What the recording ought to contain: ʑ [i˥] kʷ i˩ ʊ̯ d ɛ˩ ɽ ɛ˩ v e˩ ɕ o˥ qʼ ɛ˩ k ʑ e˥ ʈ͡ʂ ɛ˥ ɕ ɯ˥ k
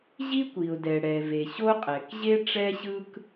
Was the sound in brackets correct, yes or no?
yes